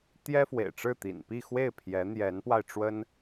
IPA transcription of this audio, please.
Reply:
t̪ j ɛ˥ f w ḛ˨˩ ɪ̯ ʈ͡ʂ ɻ̩˥˩ t̪ ḭ˨˩ n p i˥˧ x w e˥˩ ɪ̯ pʰ j ɛ˧˥ n̪ j ɛ˧˥ n p w a˧ ɪ̯ ʈ͡ʂ w ə˥ n

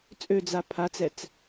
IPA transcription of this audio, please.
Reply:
t͡sʼ ø d͡z a pʰ a t͡s ɛ t͡s

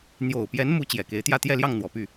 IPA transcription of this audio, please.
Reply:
n̪ j o˨˩ ʊ̯ p j ɛ˧˥ n m u˧˥ t͡ɕ j ɛ˨˩ k e˧˥ ɪ̯ t̪ j ä˥˧ t̪ j ɛ˥˧ l j ɑ˥˩ ŋ n̪ w ɔ˨˩ p y˥˩

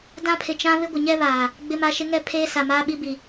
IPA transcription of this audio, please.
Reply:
d ã˦ pʰ ɪ˨ t͡ʃ ã˦ β ɪ˦ ɡʷ ɪ˨ ɲ ɛ˦ β aː˨ | ɡ͡b ɪ˦ m a˦ ʃ ɪ˦ ŋ ɛ˦ pʰ eː˦ s a˨ m aː˦ ɓ i˦ b i˨

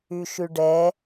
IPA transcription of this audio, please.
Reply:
y ʃ y ɖ ɛ

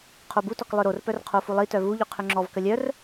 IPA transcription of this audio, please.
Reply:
qʰ o b u t ɔ k lˠ œ ɾ o r p œ r qʰ o f u lˠ i t œ v u ʎ ø qʰ ø ŋ͡ǁ ɔ v k ə lʲ œ r

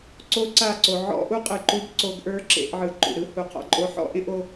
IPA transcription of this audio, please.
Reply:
ǀ o˦ ǀ a˦˨ ǀ o˨ ʕ ɔ̰˦ ʔ u˦ qʼ ɯ˨ ǃ u˦ b ǀ o˧ ɡ ʔ ə˞˦ ǁ ḛ˧ ʔ ʕ ɯ˨ ǃ ṵ˨ ɾ ɯ˦ h u˨ qʰ ɔ̰˧ ǃʼ o˧ ħ ɔ̰˦ ʔ ẽ˦ ʔ o˧

